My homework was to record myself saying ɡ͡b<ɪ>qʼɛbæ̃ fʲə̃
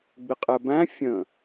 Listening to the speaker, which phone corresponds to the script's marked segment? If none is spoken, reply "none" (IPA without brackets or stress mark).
ɪ